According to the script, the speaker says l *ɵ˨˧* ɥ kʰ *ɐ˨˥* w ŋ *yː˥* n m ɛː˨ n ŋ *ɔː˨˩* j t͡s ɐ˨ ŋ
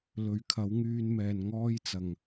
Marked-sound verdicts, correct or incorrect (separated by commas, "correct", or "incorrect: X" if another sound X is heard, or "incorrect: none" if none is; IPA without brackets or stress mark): correct, correct, incorrect: yː˧, incorrect: ɔː˥